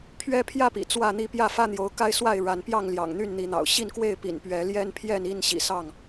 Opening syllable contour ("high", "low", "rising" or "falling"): high